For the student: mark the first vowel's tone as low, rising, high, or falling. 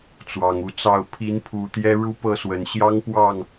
low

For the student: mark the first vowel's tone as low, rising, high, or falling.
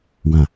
low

